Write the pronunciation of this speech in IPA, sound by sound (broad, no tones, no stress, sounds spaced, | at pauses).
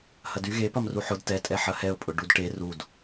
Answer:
h ɐ d y ɣ e p ɐ m r u ħ ʊ d t ɛ tʼ ɛ ħ ɐ h ɛ ʊ̯ pʼ ʊ ɖ u d ʈ e r u d